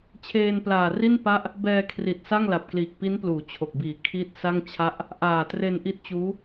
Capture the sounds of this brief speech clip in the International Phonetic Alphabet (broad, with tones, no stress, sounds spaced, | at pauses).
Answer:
t͡ɕʰ eː˧ n p l aː˨˩ r i˥˩ n p a˥˩ ʔ | b ɛː˧ kʰ r i˨˩ t̚ s a˥˩ ŋ l a˨˩ p̚ k l iː˨˩ k̚ p i˦˥ n p l uː˩˦ t͡ɕʰ o˨˩ k̚ b iː˨˩ kʰ iː˦˥ t̚ s a˥˩ ŋ t͡ɕʰ a˥˩ ʔ | ʔ aː˨˩ t r e˧ n ʔ i˦˥ t̚ t͡ɕ uː˦˥